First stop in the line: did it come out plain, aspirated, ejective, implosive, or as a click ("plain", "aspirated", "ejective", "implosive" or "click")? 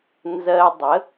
plain